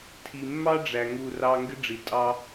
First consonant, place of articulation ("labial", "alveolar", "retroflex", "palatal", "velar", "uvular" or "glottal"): alveolar